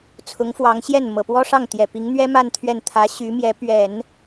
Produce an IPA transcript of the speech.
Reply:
t͡sʰ ʊ˧˥ ŋ f w ɑ˧˥ ŋ ɕ j ɛ˥˩ n m ɤ˨˩ p w ɔ˥ ʂ ɑ˥˩ ŋ t̪ j ɛ˨˩ p i˧˥ ŋ n̪ ɥ ɛ˥ m a˥˧ n t̪ʰ ɥ ɛ˥˩ n t̪ʰ ä˧˥ ɕ y˧˥ m j ɛ˧˥ p ɥ ɛ˨˩˦ n

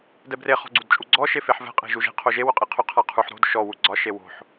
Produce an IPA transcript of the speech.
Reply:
d ɛ b r e χ ɔ̤ ɡ͡ǀ u d t͡ʃʼ u ɡ͡ǀ ɔ ʃ e f e ħ v ɛ̤ qʼ e̤ ʒ u ʒ e̤ qʰ o ʒ e w ʊ qʼ e qʰ ʊ qʰ a qʰ u ħ ɾ o̤ d ʃ ɔ w u ɡ͡ǀ ɒ ʃ e w o̤ ħ

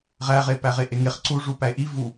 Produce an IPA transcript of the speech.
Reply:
ʁ æ ʁ e p æ ʁ e ʔ e ŋ e χ ǀ u ʐ u p æ e̯ ʔ i v u

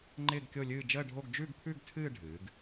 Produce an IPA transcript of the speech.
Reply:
ŋ͡ǃ ɪː˥˧ ɡ kʲ o˥˧ lʲ ɨː˥˧ d͡ʒ əː˥˧ ɖʱ o˥˧ ɡ d͡ʒ ʉ˥˧ ɡ pʰ ʉ˥˧ ɡ tʰ ɨː˥˧ ɖʱ ɨː˩˧ ɡ

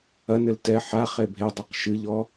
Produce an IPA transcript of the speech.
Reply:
ɐ n ɘ l t ɛ ħ a χ e bʱ e dˤ a q ʃ ɨ ʎ ɔ

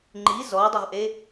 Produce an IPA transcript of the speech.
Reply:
ŋ͡ǃ i z ɔ dˤ ʊ ʁ ʔ e

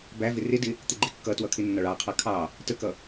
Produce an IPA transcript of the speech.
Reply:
b æ v ɪ r ɪ d ɪ | t̪ ɪ ɡ͡ǃ ɪ kː ʌ t w ʌ kʰ ɪ nː ɒ ɭ ɑ qʰ ɑ kʰ ɑ | t ə k ʌ

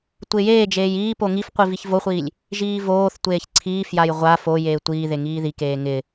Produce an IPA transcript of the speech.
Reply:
tʷ ɪː j eː d͡ʒ eː j iː p o ŋ i f qʷ i v i ç v o χʷ iː lʲ | ʒ iː v oː θ tʷ eː ç ǀʰ iː f j a j ʁʷ a f o j eː tʷ iː ð e ŋ iː ð i k eː ŋ ɪ

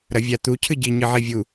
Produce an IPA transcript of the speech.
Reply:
ɾ ɐ vʲ a t̪ u cʰ ɨ ɟ i ɲ ɨ ʕ i vʲ u

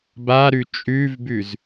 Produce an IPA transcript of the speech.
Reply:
b a ɾ ʉ t͡ʃʼ ʉ v b ʉ z

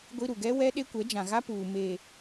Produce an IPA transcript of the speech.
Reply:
ɡʷ i˦ ɾ u˨ ɡ ɛ˦ w ɛ˦ ɗ e˦ kʷ ɛ˨˦ d͡ʒ ã˨ ɣ a˦ p uː˨ m e˨

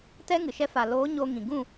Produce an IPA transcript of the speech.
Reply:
t ɛ˦ ŋ ɨ˨ ʃ ɛ˧ f a˨ l oː˨˦ ɲ o˧ ŋ ĩ˨ ɡ ũ˦˨

